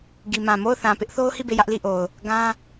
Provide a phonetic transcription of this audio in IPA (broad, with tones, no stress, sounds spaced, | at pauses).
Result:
ɡ i˨ m ã˨ m o˦˨ ʊ̯ θ ã˨ p ɪ˦ ʔ θ o˦ ʊ̯ h i˦˨ b e˦˨ j ä˦ ʔ l i˦˨ ʔ o˨ ʊ̯ | ɡ ã˦